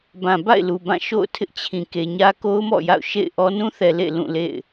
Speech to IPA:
b ã˨ b a̰˦˨ ɪ̯ l u˨ b ã˦˨ ʃ o̰˦˨ ʊ̯ tʰ ɪ˦ ʔ t͡ɕʰ ĩ˨ k e˨ ɲ ä˦ k o˦ ʊ̯ m ɔ̰˦˨ j a̰˦˨ ʊ̯ ʃ ḛ˦˨ ɪ̯ ʔ ɔ˦ n ũ˦ θ ɛ˨ l ḛ˦˨ l ũ˦˨ l ḛ˦˨ ɪ̯

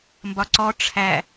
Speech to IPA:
m b ɒ ǀ ɔ ʈ͡ʂʰ æ

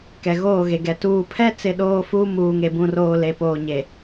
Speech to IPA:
k ɛ˨ ɣ oː˦˨ ɣ e˨ ɡ ɛ˨ t uː˨ pʰ ɛ˦ t͡s ɪ˦˨ ɗ oː˦ f uː˦ m uː˨ ŋ e˨ b ũ˨ r oː˨ l e˨ p oː˨ ɲ e˨

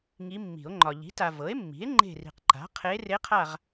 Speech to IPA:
ŋ i˧˥ mː i̤˨˩˦ o̯ ŋ͡ǃ ɒ˨ ʎ i̤˩˥ t a˨ v ɤ˩˥ e̯ mː i̤˩˥ e̯ ŋ͡ǃ e̤˦˨ r i̤˨ q ǃ a̤˩˥ qʰ e˧˥ r e˧˥ qʰ a˦˨ ʁ

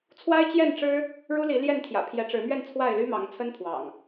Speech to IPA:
t͡sʰ w a˦ ɪ̯ t͡ɕ j ɛ˥˨ n ʈ͡ʂ ɻ̩˦ | ɻ u˦ l i˨˦ l j ɛ˥˨ n t̪ʰ j ä̰˨˩ pʰ j ɛ˨˦ ʈ͡ʂ ɻ̩˨˦ m ɥ ɛ˥˨ n t͡sʰ w a˥˨ ɪ̯ l y˦ m ɑ˨˦ ŋ t͡sʰ ə˦ n pʰ w ɑ̰˨˩ ŋ

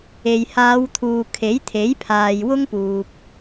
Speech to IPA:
e˨ j h aː˨˧ w t̪ʰ uː˨ kʰ e˨˥ j t̪ʰ e˨˥ j pʰ aː˨ j w ʊ˥ ŋ p uː˨ p̚

